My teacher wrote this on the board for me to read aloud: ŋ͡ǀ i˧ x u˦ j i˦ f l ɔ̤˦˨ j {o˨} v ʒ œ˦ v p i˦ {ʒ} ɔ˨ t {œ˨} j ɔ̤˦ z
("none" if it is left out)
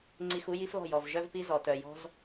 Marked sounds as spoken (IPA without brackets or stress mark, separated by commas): ɔ˨, z, œ˨